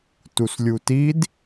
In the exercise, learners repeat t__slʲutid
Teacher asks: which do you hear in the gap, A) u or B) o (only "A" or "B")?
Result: A